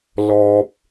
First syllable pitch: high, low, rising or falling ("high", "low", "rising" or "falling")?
high